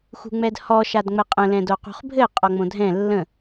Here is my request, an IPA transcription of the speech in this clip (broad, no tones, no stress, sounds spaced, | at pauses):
x ṳ ŋ͡m ɛ d h ɔ ʃ a d ŋ͡m ɘ qʼ ə̃ l ɛ̃ d o q ṳ χ bʱ ɘ qʼ ɔ ŋ͡m õ dʱ ɛ̃ lː ə̃